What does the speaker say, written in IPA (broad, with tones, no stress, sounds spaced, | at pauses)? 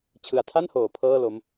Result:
t͡ɕʰ ɯ˨˩ a̯ tʰ a˥˩ n h oː˨˩ pʰ ɤː˥˩ l o˦˥ m